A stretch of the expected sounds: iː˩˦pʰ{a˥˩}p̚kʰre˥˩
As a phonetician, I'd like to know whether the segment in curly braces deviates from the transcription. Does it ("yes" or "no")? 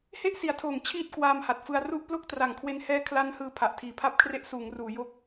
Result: no